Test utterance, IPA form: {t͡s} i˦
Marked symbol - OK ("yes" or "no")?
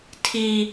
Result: no